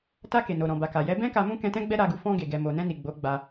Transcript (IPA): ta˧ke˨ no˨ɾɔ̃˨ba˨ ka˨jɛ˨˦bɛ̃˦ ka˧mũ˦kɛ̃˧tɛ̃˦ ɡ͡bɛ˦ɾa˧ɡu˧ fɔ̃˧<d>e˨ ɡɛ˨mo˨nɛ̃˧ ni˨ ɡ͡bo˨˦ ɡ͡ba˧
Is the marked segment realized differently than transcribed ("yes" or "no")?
yes